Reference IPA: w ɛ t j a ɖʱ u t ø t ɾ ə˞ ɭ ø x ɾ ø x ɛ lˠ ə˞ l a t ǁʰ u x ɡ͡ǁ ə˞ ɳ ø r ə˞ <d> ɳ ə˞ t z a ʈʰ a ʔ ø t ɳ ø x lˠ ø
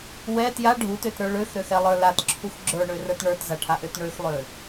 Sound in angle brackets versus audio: incorrect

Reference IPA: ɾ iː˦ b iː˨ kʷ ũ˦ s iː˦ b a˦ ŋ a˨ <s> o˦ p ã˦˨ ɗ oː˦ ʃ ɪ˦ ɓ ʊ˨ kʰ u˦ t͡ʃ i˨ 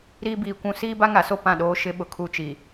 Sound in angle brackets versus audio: correct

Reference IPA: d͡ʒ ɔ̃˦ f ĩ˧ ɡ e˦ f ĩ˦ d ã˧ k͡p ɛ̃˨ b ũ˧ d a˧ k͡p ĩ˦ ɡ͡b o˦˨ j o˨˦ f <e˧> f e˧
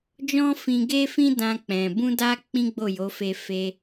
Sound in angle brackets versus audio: correct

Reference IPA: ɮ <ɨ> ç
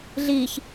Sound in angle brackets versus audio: incorrect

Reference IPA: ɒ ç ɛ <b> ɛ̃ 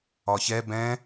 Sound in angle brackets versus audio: correct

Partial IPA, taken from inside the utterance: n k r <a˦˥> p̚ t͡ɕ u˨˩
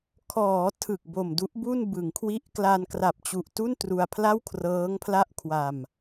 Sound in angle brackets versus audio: incorrect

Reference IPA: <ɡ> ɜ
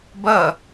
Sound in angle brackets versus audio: incorrect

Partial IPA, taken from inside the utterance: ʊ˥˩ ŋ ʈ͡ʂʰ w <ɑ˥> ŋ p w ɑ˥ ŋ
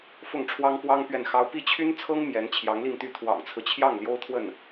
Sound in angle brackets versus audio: correct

